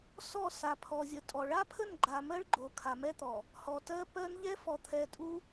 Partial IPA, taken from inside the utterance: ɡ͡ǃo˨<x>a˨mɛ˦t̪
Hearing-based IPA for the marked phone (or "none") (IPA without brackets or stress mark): kʰ